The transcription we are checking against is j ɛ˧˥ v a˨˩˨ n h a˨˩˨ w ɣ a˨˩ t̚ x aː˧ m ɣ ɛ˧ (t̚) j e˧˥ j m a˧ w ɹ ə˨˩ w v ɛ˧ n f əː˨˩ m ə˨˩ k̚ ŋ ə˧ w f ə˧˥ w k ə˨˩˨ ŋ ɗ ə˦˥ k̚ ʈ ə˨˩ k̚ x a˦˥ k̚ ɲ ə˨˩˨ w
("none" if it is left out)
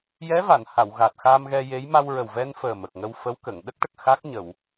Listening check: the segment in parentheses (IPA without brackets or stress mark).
none